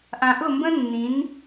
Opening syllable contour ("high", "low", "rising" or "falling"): low